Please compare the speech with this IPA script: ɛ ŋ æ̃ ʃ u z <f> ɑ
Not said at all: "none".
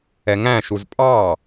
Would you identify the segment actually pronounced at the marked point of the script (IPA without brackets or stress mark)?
pʼ